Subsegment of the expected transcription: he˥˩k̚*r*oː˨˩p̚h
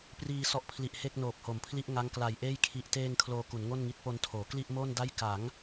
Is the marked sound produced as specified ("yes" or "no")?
no